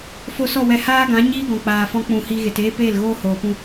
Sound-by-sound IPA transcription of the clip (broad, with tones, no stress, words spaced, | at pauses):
fo˧sɔ˦˨wɛ˧ haː˦ɡã˨˦ ɲiː˦ɡɔ̃˨k͡paː˨ fɔ̃˦k͡pũ˧hi˦ ɣe˨teː˦ peː˦˨lɣoː˦ hoː˨pũ˧